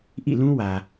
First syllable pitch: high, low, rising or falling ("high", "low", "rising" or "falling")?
falling